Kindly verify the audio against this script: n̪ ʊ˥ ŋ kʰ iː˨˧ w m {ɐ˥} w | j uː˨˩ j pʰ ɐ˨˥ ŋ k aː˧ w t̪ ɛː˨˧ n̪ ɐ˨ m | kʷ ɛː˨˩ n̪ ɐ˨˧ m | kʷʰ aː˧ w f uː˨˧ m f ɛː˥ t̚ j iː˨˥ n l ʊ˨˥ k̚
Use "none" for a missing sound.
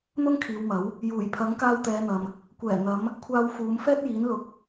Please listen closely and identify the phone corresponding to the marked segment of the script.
ɐ˨˥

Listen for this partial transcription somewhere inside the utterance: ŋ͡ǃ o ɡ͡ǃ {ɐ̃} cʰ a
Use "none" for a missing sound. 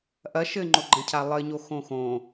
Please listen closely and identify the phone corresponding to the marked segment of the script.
ɐ̃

